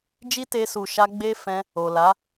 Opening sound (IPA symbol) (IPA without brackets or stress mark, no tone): d͡ʒ